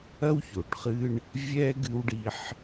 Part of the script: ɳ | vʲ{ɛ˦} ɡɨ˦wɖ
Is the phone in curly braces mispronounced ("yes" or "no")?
no